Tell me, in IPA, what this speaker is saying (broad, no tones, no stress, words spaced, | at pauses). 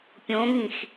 pʲõŋĩx